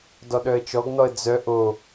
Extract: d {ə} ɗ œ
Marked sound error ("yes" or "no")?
yes